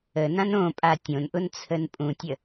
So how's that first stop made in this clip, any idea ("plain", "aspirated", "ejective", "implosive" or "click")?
ejective